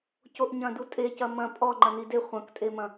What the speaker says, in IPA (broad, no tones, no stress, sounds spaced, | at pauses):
c o ʔ ɲ ɐ̃ d u tʼ e c ɐ m ɐ̃ pʼ ɔ ŋ͡ǃ ɐ n i d e χʷ ɐ̃ k tʼ e m ɐ̃